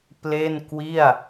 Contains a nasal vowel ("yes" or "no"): no